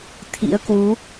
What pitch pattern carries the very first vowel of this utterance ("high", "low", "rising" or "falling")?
rising